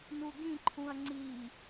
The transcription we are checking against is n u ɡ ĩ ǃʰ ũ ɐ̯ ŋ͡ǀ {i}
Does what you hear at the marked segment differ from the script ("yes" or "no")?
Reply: no